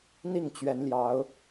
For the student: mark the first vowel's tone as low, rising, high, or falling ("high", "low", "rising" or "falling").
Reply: falling